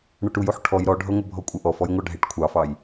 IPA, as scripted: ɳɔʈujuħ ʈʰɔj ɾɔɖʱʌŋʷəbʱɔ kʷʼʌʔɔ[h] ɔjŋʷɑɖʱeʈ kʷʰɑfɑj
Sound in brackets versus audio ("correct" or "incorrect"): incorrect